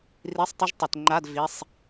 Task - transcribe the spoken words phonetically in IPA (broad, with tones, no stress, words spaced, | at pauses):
ri˧˥˧sˤtˤu˦˥ʒtˤə˧˩˧tŋ͡ǃa˧˥˧d vi˧˥˧sˤ